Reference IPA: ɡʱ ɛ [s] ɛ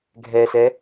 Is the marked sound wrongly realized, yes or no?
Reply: no